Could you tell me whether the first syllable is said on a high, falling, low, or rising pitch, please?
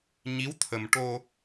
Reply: rising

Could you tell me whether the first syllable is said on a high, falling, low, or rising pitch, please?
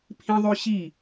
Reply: high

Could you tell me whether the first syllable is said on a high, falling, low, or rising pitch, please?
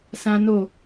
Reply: high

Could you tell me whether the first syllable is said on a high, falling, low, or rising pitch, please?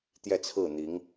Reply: falling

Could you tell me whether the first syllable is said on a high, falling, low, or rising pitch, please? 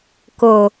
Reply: low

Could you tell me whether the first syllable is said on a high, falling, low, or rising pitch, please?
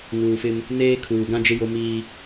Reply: low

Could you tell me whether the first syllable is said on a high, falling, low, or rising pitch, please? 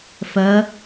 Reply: rising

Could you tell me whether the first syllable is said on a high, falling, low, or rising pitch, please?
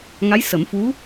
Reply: rising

